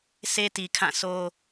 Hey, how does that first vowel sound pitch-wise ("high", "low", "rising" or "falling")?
high